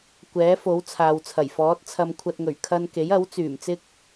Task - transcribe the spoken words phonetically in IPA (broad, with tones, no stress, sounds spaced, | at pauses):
kʷ ɛː˨˥ f o˨˥ w t͡sʰ aː˨ w t͡sʰ ɐ˨˩ j f ɔː˨˥ t̚ t͡sʰ ɐ˧ m kʷʰ ɐ˧ t̚ ŋ ɵ˨˩ ɥ kʰ ɐ˥ n k e˨˥ j ɐ˨˥ w t͡s yː˨˩ m t͡s ɪ˥ k̚